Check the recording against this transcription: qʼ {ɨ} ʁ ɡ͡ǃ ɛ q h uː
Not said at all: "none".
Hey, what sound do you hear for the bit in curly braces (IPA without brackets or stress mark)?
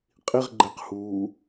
i